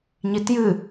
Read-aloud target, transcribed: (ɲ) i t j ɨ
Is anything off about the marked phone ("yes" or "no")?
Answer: no